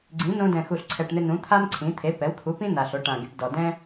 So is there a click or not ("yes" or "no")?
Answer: yes